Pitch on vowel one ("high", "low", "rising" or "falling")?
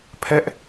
high